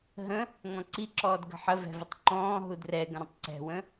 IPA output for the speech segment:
ɦ ə̃ | ŋ ɔ̃ ǀ i ǁ ɔː d ɡ ə̤ ħ ə v ɛ̤ v ɪ tˤ ǃ ɔ̃ː ɦ u d r ɛ ɡ ə̃ ɾ ə̃ tˤ ǀ ɛ̤ w ə̃

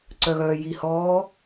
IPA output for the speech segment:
ǀ œ ɣ œː j i h ɔː

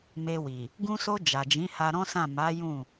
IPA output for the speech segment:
m e˧ w i˨ | ɡ ũ˧ s o˧ d͡ʒ a˨ d͡ʒ ĩ˨˦ h a˧ ɾ ɔ̃˦ s ã˦˨ m a˨˦ j ũ˦˨

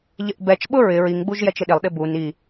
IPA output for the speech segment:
ʎ ɪ ʔ b ɛ t͡ʃ ɓ ʊ ɹ ɪ ɹ i ŋ ɡ͡b u ʒ j ɛ t͡ʃ ɪ ɗ ɪ lˠ ɗ ɪ b u n i

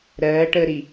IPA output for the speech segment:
ɾ ɜː ʈ əː ɾ i

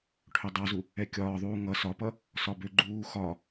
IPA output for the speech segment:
ʈʰ ø dˤ ɑ z u | ɛ kʲ ɒː ðˤ uː ŋ ʌ s ɒ p ʌ | s ɒ b ø ɡ͡ǃ uː x ɒ

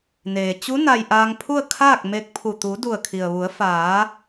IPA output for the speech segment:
n eː˩ t͡ɕ u˧˥ n a˧ j ʔ aː˧ ŋ pʰ u˥˨ ə̯ kʰ aː˥˨ k̚ m e˧ k̚ pʰ u˧˩ t̪ u˩˧ d u˧˩ ə̯ kʰ i˩ ə̯ ʋ u˩˧ ə̯ f aː˩˧

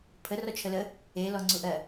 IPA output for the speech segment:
pʰ ə r ɔ t͡ʃʰ ə l ə | e l ɔ ŋ͡ǀ u ʔ ɜ

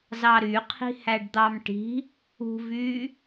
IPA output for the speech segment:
z ɑ ɾ y qʰ i̤ h æ ɖ d̪ ɑ m ʈ i̤ | ṳ v yː

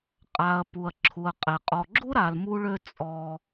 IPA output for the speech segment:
qʼ a˧ ɐ̯ p u˧ ɐ̯ ǁʰ u˧ ɐ̯ qʼ ɛ˧ qʼ ɔ˧ ɡ͡ǁ u˥ ɾ a˧ l m u˥ ɭ ø˥ t͡sʼ ɔ˥

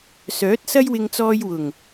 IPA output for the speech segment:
s œː˨˥ t̚ s ɐ˥ j w ɪ˧ ŋ t͡s ɔː˧ j w ʊ˨˩ ŋ

